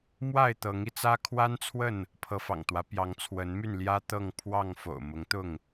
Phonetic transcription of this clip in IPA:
m w a˥˨ ɪ̯ t̪ ɤ˨˦ ŋ i˧ t͡s ä˦ kʰ w a˦ n t͡sʰ w ə˥˨ n | pʰ ɤ˨˦ f ɑ̰˨˩ ŋ t̪ w ä˨˦ p j ɑ˨˦ ŋ t͡sʰ w ə˨˦ n m y˥˨ n l j ä˦ t̪ ɤ˥˨ ŋ pʰ w ɑ˥˨ ŋ f o̰˨˩ ʊ̯ m ʊ˨˦ ŋ t̪ ʊ˥˨ ŋ

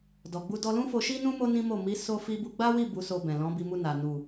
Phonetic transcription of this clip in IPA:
d ɔ˨ ɡ͡b u˧ d ɔ˧ l ũ˦ f o˧ ʃ i˦ n ũ˦ m o˦ n ĩ˦ m o˦˨ m i˨˦ s o˧ f i˧ b u˧ ɡ͡b a˦ w i˦˨ b u˨˦ s o˧ b ɛ̃˨ l ɔ̃˨˦ b i˧ m u˧ n a˨ n u˨

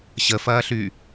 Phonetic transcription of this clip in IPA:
ɕ ə f ɐː ɬ y

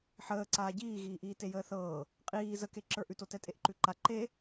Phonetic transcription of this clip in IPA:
ħ əː ǀ aː ɟ iː ɣ iː ʔ iː t e j əː θ ɤː | qʼ iː z ə k e ǁ ə˞ ʔ ʉ t o t ɛ tʼ e ʔ ǃ ʉ ǃ a ǃ e

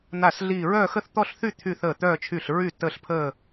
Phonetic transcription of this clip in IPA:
n̪ a˥˩ s ɮ iː˥˧ ɹ œː˥˧ x ə˥˧ θ t̪ ɔ˥˧ ɬ θ y˥˧ t̪ʰ y˥˧ θ əː˥˩ t̪ œː˥˧ t͡ʃʰ y˥˩ ɬ ɹ y˥˩ tː əː˥˧ ɬ pʰ əː˥˧

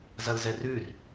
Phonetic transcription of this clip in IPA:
z ɐ l z ɛ r ʉ r

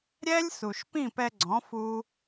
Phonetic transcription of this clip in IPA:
ɾʲ ɛ˦ lʲ s u˨ ʃ p ĩ˦˨ p ɛ˧ ɡ͡ǀ ɔ̃˨˦ f u˦

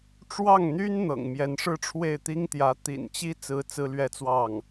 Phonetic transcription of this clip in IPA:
ʈ͡ʂ w ɑ˥˩ ŋ n̪ y˥ n n̪ ɤ̰˨˩ ŋ m j ɛ˧˥ n ʂ ɻ̩˥˧ ʈ͡ʂʰ w e˥˩ ɪ̯ t̪ i˥ ŋ t̪ j ä˧˥ t̪ ḭ˨˩ n t͡ɕ i˥ t͡s ɹ̩˥ t͡s ɹ̩˥ l ɥ ɛ˥˧ t͡s w ɑ˥˩ ŋ

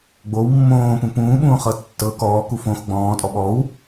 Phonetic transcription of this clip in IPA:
ɡ͡b o w mː õː p ũ p ũː ɓ ũː χ ɤ tː ɤ k ɔː k u f õ x ɡ͡b ɔ̃ː tʼ ɔ ɓ ɔ w

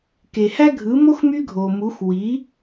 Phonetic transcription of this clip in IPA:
k e˩ h æ˥ ɡʱ ɯ˩˥ m o˥ x m y˥ ɡʱ o˩ m u˩˥ x w i˩˥

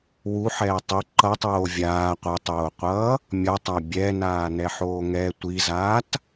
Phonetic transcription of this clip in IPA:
w u ħ ɛː tˤ i ǃ ʌ tˤ oː vʲ aː qʷ ʌ tˤ oː qʷ ʌː | mʲ ʌ tˤ a bʲ ɛ n aː n ɛ ħ oː ŋ ɛ tʷ i z aː t

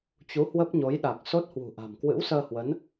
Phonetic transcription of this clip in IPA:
t͡ɕ u˨˦ h w ə˦˥ p̚ ɲ o˨˦ j ɗ a˨˩ k̚ s o˦˥ t̚ h w ṳ˨˩ ʔ a̤˨˩ m k w ɨ̰˧˥ w s əː˧ h w ə˨˦ n

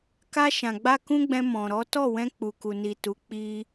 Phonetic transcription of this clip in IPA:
k a˧ ʃ ã˨ ɡ͡b a˧ k ũ˦ ɡ͡b ɛ̃˧ m ɔ̃˨ ɾ ɔ˨˦ t ɔ˦˨ w ɛ̃˧ k͡p u˨ k u˨ n i˨ t u˨˦ k͡p i˧

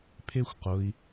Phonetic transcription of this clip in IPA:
pʰ e xʷ q ʊ i̯

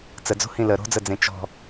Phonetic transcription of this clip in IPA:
t͡s ə d͡z o̤ h ĩ l ə ɾ o̤ d͡z ə d͡z ẽ t͡ʃ ɔ̤

